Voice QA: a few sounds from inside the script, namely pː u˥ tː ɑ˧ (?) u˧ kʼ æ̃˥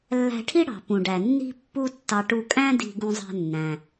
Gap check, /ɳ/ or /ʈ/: ʈ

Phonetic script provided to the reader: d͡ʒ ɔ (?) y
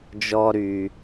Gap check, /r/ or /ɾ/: ɾ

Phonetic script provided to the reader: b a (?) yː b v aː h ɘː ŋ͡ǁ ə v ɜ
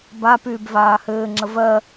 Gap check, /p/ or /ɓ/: p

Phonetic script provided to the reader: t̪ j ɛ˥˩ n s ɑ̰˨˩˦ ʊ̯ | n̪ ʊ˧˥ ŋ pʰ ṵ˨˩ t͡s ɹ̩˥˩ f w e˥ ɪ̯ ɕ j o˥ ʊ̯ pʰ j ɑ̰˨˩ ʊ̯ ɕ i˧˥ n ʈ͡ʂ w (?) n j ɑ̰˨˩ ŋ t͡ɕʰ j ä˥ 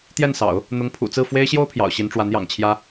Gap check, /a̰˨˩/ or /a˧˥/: a˧˥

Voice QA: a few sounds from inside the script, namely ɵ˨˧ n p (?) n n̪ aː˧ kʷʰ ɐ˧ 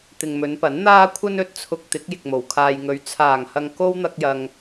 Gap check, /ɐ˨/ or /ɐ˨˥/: ɐ˨˥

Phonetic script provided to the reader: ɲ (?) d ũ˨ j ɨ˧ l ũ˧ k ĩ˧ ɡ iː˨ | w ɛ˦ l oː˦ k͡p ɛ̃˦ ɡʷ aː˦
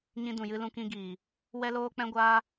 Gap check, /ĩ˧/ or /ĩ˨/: ĩ˧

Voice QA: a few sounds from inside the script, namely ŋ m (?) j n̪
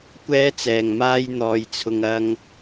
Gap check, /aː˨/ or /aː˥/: aː˥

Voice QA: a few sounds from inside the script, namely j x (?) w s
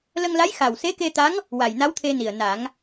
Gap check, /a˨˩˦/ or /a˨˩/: a˨˩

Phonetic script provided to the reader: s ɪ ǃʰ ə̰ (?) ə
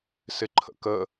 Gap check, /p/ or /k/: k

